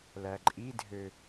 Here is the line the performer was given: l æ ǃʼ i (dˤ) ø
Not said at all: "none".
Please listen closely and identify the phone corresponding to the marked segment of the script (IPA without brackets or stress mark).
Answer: dʱ